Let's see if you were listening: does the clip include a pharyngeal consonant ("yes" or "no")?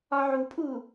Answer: yes